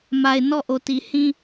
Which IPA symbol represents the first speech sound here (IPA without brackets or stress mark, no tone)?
m